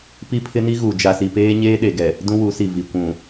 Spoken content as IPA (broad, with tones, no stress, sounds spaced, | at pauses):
p i˦ pʰ ɪ˦ n i˦ ɣ u˨ d͡ʒ a˨ s i˨ p eː˦ ɲ eː˦ ɗ e˨ ɡ ɛ˨ | d ũ˦ w u˨˦ s i˨ v i˨ kʷ ũ˨